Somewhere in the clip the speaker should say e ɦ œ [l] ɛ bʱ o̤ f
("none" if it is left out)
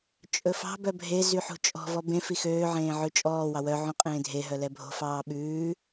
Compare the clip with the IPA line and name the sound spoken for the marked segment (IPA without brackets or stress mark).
l